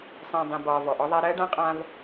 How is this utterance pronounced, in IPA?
sˤ ĩː˨ dˤ ĩ˨ b ɒː˨ v ɔ˨ ʔ ɔ˦ ðˤ a˦ ɾ ɜː˦ ɖ ã˦ qʼ ã˦ v

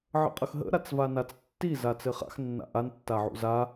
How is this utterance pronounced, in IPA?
ʕ ə̰ qʼ ə x ɦ ə̰ ɾ a t͡s v a n a t͡s tː i z a t͡s ɘ χ a̰ x nː a̰ ʔ a n tː a ʕ ṵ z a

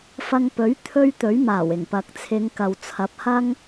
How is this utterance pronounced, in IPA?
f ɐ˧ ŋ p ɵ˨˥ ɥ t̪ʰ ɵ˥ ɥ t̪ ɵ˨˥ ɥ m aː˨˩ w ɪ˨˩ ŋ p ɐ˨ k̚ t͡sʰ ɪ˨˧ ŋ k ɐ˨ w t͡sʰ ɐ˨˥ p̚ h ɐ˥ ŋ

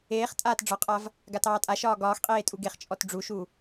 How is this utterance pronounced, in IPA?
eː χ tʼ aː t ɖ͡ʐ ɒ qʼ a v | ɡ a t ɑː tʼ a ʃ ɒː ɡ ɒː x qʼ eː tʼ u ɡ e χ t͡ʃʼ ɔ t ɖ͡ʐ u ʃ u

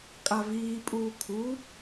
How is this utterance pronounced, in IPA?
kʼ a v iː pʼ uː kʰ u

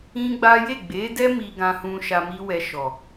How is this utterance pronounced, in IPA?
ĩ˦ ɡ͡b a˦ j e˦˨ ɡ͡b e˨˦ d ɛ˦ m i˧ ɡ ã˧ h ũ˧ ʃ a˧ m i˦ w ɛ˧ ʃ ɔ˨

